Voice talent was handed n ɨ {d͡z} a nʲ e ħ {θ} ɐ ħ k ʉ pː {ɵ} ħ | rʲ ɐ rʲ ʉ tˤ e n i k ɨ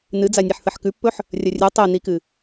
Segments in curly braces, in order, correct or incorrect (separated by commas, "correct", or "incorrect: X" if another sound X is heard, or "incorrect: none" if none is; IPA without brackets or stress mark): correct, correct, correct